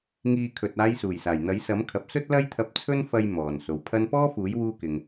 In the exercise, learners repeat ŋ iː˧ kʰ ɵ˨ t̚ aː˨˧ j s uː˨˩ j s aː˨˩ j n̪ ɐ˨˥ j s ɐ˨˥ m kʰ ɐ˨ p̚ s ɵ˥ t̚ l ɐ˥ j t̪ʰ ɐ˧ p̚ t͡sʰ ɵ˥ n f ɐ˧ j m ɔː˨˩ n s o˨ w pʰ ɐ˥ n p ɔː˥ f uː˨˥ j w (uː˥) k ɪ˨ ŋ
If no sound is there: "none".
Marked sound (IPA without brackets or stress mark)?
uː˥